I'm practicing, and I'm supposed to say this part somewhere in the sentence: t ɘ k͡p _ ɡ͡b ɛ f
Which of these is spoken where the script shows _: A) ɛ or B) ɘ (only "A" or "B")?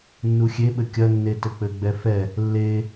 B